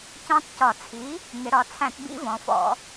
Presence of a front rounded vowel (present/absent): absent